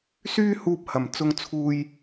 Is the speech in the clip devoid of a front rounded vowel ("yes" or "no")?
no